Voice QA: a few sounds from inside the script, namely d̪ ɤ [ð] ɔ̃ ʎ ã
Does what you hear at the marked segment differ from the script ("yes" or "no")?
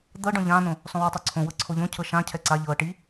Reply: yes